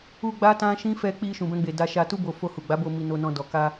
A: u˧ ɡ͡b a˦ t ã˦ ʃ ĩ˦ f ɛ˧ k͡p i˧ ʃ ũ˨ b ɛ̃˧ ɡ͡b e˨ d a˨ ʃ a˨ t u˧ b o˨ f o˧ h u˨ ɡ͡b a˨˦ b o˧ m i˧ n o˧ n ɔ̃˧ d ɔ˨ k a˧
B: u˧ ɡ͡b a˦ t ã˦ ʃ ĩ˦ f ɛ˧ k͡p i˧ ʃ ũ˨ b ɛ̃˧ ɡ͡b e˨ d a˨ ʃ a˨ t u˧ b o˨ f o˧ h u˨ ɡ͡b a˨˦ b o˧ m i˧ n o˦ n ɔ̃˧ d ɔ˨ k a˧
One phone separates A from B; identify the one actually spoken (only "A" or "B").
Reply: A